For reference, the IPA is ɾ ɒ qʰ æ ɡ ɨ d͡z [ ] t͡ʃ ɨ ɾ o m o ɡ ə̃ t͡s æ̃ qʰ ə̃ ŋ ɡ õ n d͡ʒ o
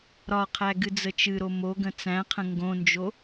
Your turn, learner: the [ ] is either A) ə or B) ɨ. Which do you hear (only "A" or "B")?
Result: A